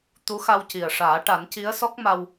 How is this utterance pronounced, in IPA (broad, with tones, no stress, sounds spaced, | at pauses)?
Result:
t̪ u˧˥ x a˧ w c i˨˩ ə̯ ʂ aː˨˩˦ ʈ a˨˩˦ n c i˧˥ ə̯ s ɔ˦˥ k̚ m a˧ w